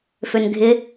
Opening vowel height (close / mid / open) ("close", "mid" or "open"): mid